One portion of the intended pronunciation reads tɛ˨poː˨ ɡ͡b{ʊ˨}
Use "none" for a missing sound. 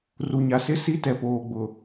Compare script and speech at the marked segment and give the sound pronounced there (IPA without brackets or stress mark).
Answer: ʊ˨